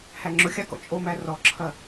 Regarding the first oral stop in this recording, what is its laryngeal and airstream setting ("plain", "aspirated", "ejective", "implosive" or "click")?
click